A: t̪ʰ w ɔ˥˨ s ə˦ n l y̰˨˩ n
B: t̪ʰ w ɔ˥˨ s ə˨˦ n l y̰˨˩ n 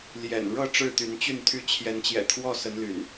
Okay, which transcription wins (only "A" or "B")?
B